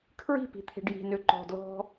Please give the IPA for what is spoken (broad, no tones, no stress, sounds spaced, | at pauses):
kʰ ɹ i̤ p i̤ t̪ʰ e̤ ɖ j i̤ n ø ǃ ɔ̤ d l ɔ̤